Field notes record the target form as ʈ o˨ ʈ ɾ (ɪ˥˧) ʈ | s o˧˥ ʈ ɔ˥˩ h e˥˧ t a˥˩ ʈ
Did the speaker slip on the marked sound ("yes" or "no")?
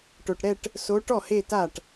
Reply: yes